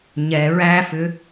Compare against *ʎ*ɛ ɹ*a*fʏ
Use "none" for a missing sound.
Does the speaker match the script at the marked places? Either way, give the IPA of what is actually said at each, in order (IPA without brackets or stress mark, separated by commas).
ɲ, æ